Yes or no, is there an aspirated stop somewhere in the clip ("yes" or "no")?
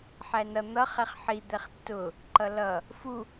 no